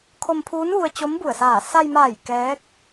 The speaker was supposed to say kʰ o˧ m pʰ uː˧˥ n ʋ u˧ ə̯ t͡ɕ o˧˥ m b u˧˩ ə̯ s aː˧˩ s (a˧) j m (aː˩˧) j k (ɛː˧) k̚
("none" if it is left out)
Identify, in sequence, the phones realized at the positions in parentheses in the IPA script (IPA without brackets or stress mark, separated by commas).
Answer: a˧, aː˧˩, ɛː˧˥